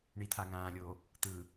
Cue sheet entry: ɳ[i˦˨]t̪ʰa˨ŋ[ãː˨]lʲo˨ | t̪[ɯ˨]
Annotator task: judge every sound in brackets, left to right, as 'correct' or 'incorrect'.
incorrect, correct, correct

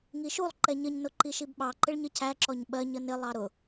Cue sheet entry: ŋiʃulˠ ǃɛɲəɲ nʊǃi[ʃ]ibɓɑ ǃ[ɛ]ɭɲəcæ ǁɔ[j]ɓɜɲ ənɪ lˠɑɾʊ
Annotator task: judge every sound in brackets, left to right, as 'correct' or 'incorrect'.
correct, incorrect, incorrect

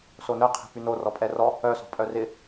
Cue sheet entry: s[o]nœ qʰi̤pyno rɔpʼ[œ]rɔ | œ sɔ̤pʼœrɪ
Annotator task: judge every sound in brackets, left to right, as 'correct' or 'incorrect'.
correct, incorrect

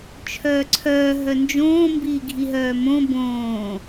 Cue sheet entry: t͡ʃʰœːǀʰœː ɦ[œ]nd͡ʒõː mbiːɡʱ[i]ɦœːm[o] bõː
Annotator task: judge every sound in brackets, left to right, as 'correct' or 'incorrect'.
correct, correct, incorrect

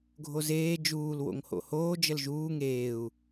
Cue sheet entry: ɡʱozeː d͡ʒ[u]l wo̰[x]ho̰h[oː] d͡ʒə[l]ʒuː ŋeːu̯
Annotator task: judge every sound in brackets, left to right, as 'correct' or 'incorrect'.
incorrect, incorrect, correct, correct

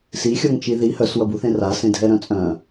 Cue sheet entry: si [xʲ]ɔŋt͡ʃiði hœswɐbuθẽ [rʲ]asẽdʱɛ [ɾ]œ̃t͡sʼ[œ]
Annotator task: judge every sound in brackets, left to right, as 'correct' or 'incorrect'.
correct, incorrect, correct, incorrect

